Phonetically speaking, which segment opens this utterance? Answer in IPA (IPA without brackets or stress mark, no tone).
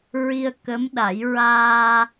ɹ